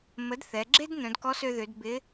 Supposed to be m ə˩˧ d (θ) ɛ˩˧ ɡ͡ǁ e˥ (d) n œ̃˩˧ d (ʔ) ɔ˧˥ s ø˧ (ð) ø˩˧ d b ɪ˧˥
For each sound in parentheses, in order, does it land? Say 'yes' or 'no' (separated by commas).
yes, yes, no, yes